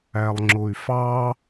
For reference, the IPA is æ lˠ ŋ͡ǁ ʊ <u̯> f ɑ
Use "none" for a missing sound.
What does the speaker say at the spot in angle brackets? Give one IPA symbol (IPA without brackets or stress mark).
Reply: y̯